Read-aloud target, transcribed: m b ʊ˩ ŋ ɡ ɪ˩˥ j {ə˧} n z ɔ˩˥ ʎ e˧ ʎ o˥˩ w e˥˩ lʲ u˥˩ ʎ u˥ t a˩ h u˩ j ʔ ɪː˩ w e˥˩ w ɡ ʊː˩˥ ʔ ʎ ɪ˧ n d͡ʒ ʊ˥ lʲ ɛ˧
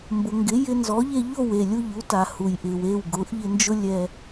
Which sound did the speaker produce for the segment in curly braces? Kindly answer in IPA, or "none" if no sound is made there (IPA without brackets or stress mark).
ɪ˧